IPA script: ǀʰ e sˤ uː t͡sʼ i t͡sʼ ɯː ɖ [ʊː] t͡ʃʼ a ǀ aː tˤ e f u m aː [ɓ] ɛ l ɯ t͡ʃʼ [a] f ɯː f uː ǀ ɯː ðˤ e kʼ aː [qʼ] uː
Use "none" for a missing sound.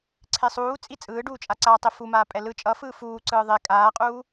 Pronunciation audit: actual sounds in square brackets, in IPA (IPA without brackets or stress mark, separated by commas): uː, pʼ, ʌ, qʼ